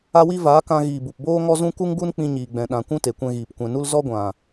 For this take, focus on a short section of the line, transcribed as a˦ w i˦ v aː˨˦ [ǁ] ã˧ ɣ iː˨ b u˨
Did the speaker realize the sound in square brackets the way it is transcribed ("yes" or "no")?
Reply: no